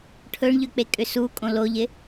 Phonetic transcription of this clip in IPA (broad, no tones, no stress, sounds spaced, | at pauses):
ʈʰ ɵ ɳ ʎ ʏ k͡p e kʼ ʏ s u kʼ õ l o ʎ ɪ